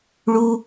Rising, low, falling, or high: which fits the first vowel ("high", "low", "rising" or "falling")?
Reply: high